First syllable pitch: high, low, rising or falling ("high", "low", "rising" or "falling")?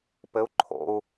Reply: rising